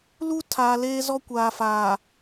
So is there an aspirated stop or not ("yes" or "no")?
yes